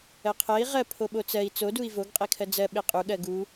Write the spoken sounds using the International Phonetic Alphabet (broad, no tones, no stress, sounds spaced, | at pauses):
ɜ qʰ ɜ i̯ ʁ ɜ pʰ o ɓ o t͡s ɜ i̯ t͡s o d u i̯ v o ɡ qʼ e kʰ ɜ d͡z ɜ ɓ e qʼ u ɠ ɜ ɡ u